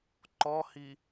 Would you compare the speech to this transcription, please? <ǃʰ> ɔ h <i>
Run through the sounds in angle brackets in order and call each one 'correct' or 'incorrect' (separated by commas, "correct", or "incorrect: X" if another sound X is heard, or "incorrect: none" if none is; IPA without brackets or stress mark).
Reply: incorrect: ǃ, correct